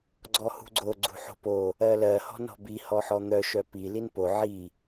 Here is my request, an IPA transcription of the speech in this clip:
ɡ͡ǀɔhṳɡ͡ǀo ɡ͡ǀṳħo̤po | ɜlɜ hɔ̤nɔ̤bi hɔħɔn̪œ ʃœpi linpo ʕi

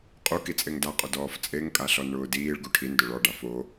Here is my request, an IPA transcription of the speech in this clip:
qʼu kit͡sʼeŋdaqʼʊ dɔːft͡sʼeŋ kʼaɬɔnɳʊːdiːɭ ɡuʈʰindʊ ɭɔɖa fo

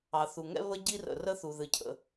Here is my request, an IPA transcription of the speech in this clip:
ɑ˩θu˩ ŋɛ̰˧βə˧ ɟi˧rə̰˩ rə˧θu˩ ðɨ˩cʰə̰˩

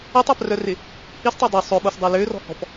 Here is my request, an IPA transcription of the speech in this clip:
ɪtˤaprœrɪ | histˤa dˤø sˤʏɓosdˤe lørɔ̤hɔ̤p

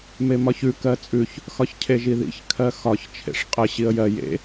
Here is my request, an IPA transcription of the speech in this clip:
memɒçʉ kɜt͡sʼʉç | xɒçcʰeʒiðḭç kʰɜxɒç t͡ʃʰḛʂqʼə ɕiə̯jɜ jḛ

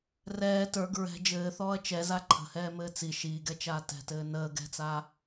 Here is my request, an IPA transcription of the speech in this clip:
rɛː tə˞ɡ ɹɛ̤ d͡ʒɘːθɔːɐ̯ t͡ʃɛza ǃʰə̤hɛːmɘː t͡si ʃiːɡɛt͡ʃaː tɛ̤tɘː nəː ɡɛ̤t͡saː

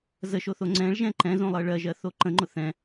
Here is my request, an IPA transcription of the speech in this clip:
zəʃoθo ŋ͡ǀɛ̃ɭʒɛ̃ ǃɛ̃zõlˠɜ ɭɜʒɜθo ǃə̃ŋ͡ǃʊ θɛ̃

